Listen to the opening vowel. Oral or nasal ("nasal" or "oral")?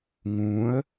nasal